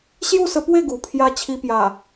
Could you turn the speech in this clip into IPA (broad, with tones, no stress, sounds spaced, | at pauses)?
ɕ j u˥˧ s ə˧ p w e˥˧ ɡ u˨˩ pʰ j a˦ t͡ɕʰ i˧ p j a˨˩